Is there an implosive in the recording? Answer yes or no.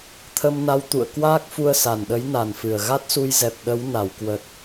yes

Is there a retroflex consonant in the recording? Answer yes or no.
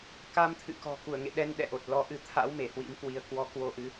no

